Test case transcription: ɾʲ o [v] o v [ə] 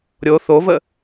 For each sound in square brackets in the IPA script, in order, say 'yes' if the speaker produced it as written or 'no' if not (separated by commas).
no, yes